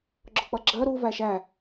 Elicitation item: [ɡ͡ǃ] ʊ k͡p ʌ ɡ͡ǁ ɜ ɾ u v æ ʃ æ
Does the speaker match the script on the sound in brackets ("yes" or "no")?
no